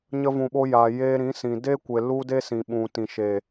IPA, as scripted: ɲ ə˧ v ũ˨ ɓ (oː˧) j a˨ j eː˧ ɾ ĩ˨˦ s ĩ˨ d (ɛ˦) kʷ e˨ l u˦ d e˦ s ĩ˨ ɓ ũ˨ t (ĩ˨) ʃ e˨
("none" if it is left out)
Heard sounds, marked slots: o˧, e˦, ĩ˨

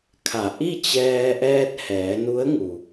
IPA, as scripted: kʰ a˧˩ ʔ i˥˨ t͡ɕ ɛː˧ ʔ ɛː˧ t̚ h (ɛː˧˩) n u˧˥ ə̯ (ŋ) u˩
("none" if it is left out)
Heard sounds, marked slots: ɛː˩˧, ŋ

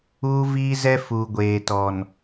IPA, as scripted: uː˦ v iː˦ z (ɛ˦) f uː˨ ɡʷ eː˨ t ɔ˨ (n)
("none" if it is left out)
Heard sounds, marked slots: ɛ˦, n

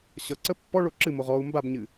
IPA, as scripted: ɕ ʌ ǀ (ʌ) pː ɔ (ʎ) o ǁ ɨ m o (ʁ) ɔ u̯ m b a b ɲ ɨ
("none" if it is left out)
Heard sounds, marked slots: ə, ɭ, ʁ

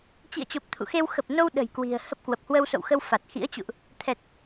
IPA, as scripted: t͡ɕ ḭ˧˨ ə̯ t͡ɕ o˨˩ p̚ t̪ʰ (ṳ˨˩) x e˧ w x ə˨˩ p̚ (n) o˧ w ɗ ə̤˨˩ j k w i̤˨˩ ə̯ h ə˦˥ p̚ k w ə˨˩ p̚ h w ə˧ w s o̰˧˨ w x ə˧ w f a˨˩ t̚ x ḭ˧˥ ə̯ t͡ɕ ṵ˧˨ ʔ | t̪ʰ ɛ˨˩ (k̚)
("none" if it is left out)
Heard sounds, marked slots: ṵ˧˨, n, t̚

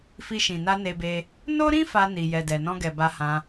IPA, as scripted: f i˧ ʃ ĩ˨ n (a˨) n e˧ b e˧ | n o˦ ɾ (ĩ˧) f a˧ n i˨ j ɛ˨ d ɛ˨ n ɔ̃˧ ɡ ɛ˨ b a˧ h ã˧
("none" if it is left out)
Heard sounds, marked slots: a˧, ĩ˦

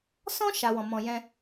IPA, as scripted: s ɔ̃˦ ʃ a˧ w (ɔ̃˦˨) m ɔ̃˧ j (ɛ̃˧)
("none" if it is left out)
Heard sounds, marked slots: ɔ̃˨, ɛ̃˧

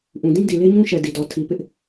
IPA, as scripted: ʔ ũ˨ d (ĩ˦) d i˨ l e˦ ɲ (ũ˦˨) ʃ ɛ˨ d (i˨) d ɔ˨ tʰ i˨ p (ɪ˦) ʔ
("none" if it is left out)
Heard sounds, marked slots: ĩ˦, ũ˦, i˨, ɪ˦

